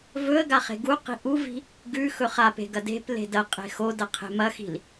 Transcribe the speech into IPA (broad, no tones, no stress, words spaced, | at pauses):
vɵə̯ɡa χe̤ɡuqi̤ ʔuvi̤ | ɡʉ xɵχape̤ ɡɐde̤ple̤ dɐqʼe̤ xodɐ qʰe̤mɐxi̤l